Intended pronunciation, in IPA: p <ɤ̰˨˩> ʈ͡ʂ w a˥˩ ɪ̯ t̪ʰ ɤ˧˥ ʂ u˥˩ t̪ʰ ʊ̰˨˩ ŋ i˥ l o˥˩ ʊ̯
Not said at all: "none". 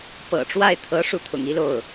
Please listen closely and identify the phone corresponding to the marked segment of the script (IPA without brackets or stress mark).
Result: ɤ̰˨˩